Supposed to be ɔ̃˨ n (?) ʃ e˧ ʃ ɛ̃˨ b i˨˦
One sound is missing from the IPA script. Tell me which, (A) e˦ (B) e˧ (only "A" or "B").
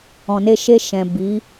B